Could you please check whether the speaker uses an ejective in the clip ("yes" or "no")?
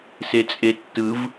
yes